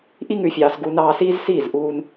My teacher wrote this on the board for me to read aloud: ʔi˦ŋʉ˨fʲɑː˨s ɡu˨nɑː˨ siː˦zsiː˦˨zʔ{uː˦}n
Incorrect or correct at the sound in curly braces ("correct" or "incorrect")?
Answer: correct